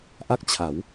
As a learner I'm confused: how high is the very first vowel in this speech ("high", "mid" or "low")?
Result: low